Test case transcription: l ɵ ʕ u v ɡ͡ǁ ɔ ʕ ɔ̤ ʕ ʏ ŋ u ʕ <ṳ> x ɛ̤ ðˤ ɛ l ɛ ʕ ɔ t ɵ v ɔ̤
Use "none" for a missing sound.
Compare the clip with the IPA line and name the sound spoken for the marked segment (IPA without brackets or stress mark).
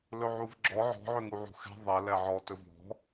ṳ